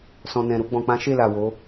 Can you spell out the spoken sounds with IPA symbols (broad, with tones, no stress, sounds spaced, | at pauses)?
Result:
s ɔ̃˨ n ɛ̃˨ ɾ u˧ ɡ͡b ɔ̃˨ k͡p ã˨˦ ʃ e˦˨ l a˨ w o˨˦